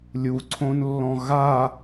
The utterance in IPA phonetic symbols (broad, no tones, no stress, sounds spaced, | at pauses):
lʲ u ǀʰ õ n lː ɔ̃ ɣ a